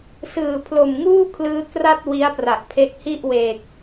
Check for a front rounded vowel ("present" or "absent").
absent